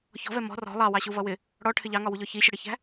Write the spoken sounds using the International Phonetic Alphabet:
çɔ̤vɛ mɔ̤ rɔ̤ lˠɑwɑɕuvʌ wɪ | ɽɔʈʰɪ ʎɑŋɒwuʎɔ çiɕʊɽɪçæ̤

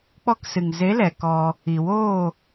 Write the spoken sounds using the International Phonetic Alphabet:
k͡pɔ˧ksɨ˨ŋze˨˦lɛ˨ kɔ˧ | i˨woː˦˨

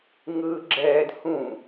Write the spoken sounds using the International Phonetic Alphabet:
ŋɯɡ͡ǁɛːd hũ

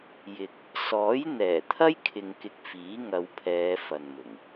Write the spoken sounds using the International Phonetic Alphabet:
jɪ˨k̚ | sɔː˨˥jn̪ɛː˨˩ t̪ʰɐ˥j kʰɪ˧ŋkɪ˧k̚ fiː˨˥ŋɐ˨˧wpʰɛː˨˧ fɐ˨nmʊ˨˩ŋ

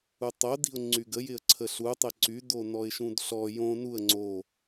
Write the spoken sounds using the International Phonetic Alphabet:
utˤodi̤ʊ̯ ŋ͡ǀyɡəjɪə̯ ǀʰəɬutˤɪ ǀydo nɔɪ̯ʃũdɬɔ jõ nuə̯ ŋ͡ǀo

